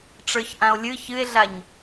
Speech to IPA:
ʈ͡ʂ ə˞ ç ʔ ã o̯ lʲ ɨ ç ɨ e̯ ɮ a ɲ

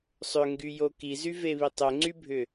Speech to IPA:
sˤ ʏ ŋ ɡ y j o k i z y v e β i tˤ ʏ ŋ͡ǀ y bʱ ʏ

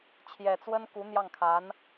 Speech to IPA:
t͡ɕʰ j ɛ˨˩ t͡s w ə˥ n k u˧˥ n̪ j ɑ˥˩ ŋ kʰ a˧˥ n

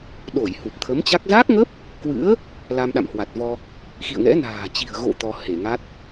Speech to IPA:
ɗ o˧˩ j h u˨˩ p̚ t̪ʰ ə˨˦ m t͡ɕ a˦˥ k̚ z a˦˥ k̚ ŋ ə˦˥ p̚ | k w ɨ̰˧˥ ə̯ | l a˧ m ɗ a̰˧˨ m h w a˨˩ t̚ v ɔ˧ | x ḭ˧˨ ə̯ ŋ ɛ̰˧˥ n a̤ː˨˩ t͡ɕ i̤˨˩ ə̯ ɣ o̰˧˨ t̪ ɔ˧ h e˧˩ ŋ a˦˥ t̚

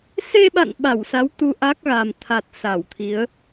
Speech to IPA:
s e˧ ɓ a̰˧˨ n ɓ a˧˩ w s a˨˦ w t̪ u˧ ʔ a˦˥ k̚ ɣ a˨˩ m t̪ʰ a˨˩ t̚ s a˧˩ w t̪ʰ i˨˦ ə̯

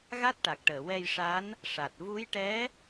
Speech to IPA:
ɣ a˦˥ t̚ ʈ a˨˩ k̚ ʈ əː˨˩˨ w ɛ˧ j ʂ a˧˥ n | ʂ a˨˩ t̚ v u˧˥ j ʈ ɛ˧˥

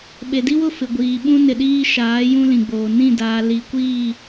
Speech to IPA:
ɓ e˨ d i˦ w ʊ˦˨ f ɪ˨ ɡʷ iː˨ ɓ ũ˦ n ɪ˨ ɗ iː˦ ʃ aː˨˦ j ũ˦ l ĩ˨ ɡ͡b oː˨ n ĩ˦˨ d aː˨ l i˨ kʷ iː˦˨

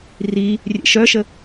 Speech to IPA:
r i | rʲ ḛ ʃ œ ʃ ə

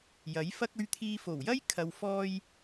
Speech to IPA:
j ɐ˨˥ j f ɐ˧ k̚ ɵ˨ ɥ t̪ʰ iː˨ f o˨˩ w j ɐ˥ j kʰ ɐ˨ w f ɔː˧ j

